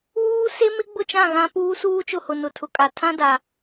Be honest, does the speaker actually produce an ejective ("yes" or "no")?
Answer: yes